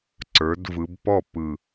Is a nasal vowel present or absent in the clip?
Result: absent